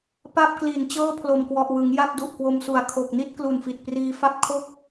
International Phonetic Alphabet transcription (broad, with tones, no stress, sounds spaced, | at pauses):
p a˥˩ p̚ k l i˨˩ n t͡ɕ ɤː˥˩ pʰ l o˨˩ m k w ɔ˨˩ ʔ w ɯ˩˦ ŋ j a˥˩ p̚ d u˨˩ ʔ k w o˧ m s u˨˩ a̯ kʰ o˨˩ k̚ n i˥˩ t̚ k l u˨˩ n f i˨˩ t̚ p r iː˧ f a˥˩ p̚ kʰ o˥˩ k̚